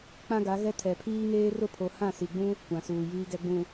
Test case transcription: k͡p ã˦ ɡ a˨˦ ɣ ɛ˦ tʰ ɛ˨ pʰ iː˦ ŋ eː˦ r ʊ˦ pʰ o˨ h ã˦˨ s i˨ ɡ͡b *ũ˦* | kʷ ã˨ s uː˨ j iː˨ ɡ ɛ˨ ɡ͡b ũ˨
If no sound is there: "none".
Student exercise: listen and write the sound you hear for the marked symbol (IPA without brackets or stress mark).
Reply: ũ˦